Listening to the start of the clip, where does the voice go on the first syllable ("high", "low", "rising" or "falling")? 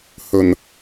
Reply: low